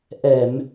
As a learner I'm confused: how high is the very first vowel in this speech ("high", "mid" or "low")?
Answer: mid